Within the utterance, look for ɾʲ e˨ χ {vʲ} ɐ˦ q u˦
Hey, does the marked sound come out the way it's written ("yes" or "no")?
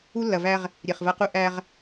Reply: no